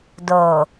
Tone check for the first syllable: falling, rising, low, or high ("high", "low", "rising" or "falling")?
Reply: low